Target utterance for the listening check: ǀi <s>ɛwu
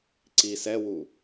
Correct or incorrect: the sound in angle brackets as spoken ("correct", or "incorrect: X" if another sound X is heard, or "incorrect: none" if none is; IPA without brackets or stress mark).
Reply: correct